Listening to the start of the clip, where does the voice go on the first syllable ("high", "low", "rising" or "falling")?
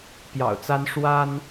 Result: low